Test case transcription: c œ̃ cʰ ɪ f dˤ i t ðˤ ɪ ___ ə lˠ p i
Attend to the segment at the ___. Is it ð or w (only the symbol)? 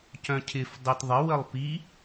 w